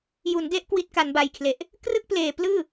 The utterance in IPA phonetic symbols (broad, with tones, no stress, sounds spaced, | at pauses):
j u˩˦ n d e˦˥ ʔ k w i˦˥ t̚ k a˩˦ n b a˨˩ j kʰ l e˨˩ ʔ | k r ɯ˥˩ k̚ p l eː˨˩ p l ɯː˥˩